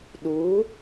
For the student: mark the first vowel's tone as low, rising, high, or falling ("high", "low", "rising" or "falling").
rising